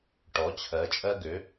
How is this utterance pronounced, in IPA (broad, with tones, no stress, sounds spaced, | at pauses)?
ʈ ɔ˩˧ t͡ɕʰ ɜ˩˧ t͡ʃʼ ɜ˧ ɡ ø˩˧